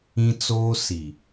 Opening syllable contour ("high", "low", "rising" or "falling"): high